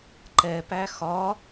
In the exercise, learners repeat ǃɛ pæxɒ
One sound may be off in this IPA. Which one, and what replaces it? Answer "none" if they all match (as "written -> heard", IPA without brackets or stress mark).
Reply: none